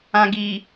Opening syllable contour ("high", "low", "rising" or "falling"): low